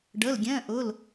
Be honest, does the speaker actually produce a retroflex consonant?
yes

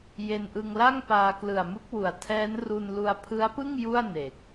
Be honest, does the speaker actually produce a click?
no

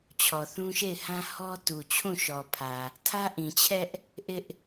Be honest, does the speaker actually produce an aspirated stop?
yes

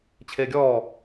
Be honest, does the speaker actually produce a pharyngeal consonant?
no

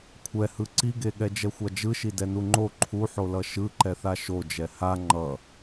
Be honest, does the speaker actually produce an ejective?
no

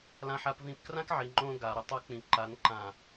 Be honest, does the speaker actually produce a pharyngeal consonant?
yes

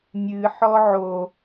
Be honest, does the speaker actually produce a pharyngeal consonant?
yes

